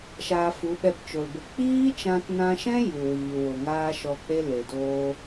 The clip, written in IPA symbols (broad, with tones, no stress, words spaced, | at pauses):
ʃaː˧fu˨˦ ɓɛ˧pt͡ʃo˨lbə˧ k͡piː˦t͡ʃã˧tnã˧ʃɛ̃˦ ju˨wiː˨ wo˨ŋaː˦ʃɔ˧k͡pe˦ le˨ doː˦